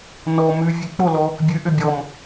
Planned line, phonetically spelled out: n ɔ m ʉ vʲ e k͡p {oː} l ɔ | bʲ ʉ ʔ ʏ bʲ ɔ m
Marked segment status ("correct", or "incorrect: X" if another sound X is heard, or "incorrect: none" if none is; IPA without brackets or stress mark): incorrect: o